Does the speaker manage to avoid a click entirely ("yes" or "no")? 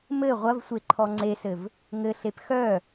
no